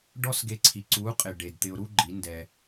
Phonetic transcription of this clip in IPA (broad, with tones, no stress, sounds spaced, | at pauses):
ɖ ɔ˦ s ɡ e˧ ǀʰ i˨ ǀ u˨˦ qʼ ɪ˨ ɖ e˨ d t̪ ɪ˧ ʊ̯ ɾ u˦ ɡ͡ǃ i˨˦ n d ɛ˧